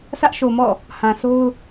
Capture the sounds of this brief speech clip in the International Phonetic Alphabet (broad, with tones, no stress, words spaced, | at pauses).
sä˦ʔʃo˨ mɔ̰˦˨ | hã˨so˦ʊ̯